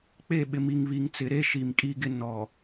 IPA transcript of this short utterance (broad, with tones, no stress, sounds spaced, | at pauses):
k͡p e˦˨ ɓ ɪ˨ m i˨ ŋ β i˨ ŋ t͡s ɪ˨ ɾ e˦ ʃ i˨ m kʼ i˦ ɡ ɪ˦ n ɔ˨